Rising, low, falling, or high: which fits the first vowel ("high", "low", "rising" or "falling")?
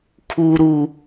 low